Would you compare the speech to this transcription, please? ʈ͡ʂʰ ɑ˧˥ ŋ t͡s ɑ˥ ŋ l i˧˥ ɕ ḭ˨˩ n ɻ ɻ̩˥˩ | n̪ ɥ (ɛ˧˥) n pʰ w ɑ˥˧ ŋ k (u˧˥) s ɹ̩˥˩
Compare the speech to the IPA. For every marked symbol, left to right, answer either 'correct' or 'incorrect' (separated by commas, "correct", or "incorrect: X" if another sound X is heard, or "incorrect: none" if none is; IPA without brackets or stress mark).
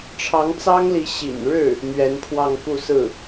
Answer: correct, incorrect: u˥˧